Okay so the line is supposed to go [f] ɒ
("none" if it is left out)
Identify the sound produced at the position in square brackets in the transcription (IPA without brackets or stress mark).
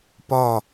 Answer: p